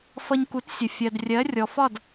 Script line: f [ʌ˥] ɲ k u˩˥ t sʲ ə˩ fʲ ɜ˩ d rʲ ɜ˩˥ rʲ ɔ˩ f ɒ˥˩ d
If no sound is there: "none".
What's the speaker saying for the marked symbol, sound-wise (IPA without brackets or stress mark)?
ʌ˧